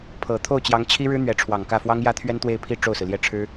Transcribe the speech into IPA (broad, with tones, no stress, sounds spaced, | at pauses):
pʰ ɤ˨˩ t̪ʰ o˥˩ ʊ̯ t͡ɕ j ɑ˧˥ ŋ t͡ɕʰ i˥ ɻ ɻ̩˥ n̪ ɥ ɛ˧˥ ʈ͡ʂʰ w ɑ˨˩ ŋ k ä˥˩ f w ɑ˥ ŋ j ä˥ t̪ʰ ɥ ɛ˥ n t̪ w e˥˧ ɪ̯ pʰ i˥˧ ʈ͡ʂ o˥˩ ʊ̯ s ɹ̩˩ l j ɛ˥˩ ʈ͡ʂʰ ɻ̩˥